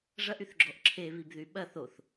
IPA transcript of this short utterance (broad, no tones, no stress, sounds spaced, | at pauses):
ʐ ɐ ʔ y θ ɡ͡ǁ ɔ ʔ ǁʰ e β i b ð y ɓ ɐ θ o θ